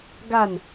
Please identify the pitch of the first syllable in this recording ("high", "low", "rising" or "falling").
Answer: falling